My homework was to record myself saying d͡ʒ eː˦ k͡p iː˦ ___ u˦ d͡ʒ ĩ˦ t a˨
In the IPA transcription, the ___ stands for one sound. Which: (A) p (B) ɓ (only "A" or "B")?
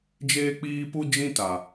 A